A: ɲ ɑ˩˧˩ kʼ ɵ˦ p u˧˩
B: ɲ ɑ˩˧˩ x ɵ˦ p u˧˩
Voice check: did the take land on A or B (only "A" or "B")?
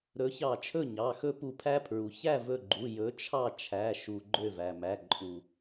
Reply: B